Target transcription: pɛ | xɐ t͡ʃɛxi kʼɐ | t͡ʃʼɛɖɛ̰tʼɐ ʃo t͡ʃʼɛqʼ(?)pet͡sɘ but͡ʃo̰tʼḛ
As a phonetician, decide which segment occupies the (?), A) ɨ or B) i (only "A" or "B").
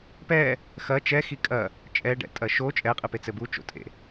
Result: A